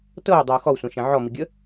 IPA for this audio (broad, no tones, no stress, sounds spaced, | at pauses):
t ɤ w dˤ e u̯ x ɔ w sʷ ɛ̃ ʃ ɛ̃ ʕ ɔ m i ɡʲ ə